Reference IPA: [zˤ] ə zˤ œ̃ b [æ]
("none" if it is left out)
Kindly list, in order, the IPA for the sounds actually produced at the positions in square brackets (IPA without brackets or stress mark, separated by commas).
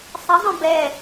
sˤ, ɛ